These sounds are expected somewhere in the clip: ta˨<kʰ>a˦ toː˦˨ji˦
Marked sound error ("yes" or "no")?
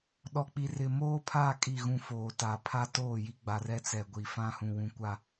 yes